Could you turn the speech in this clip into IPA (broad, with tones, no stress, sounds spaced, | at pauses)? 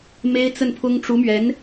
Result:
m e˥ ɪ̯ t͡s ə˥˩ n pʰ ʊ˥ ŋ ʈ͡ʂ u˧˥ m ɥ ɛ˧˥ n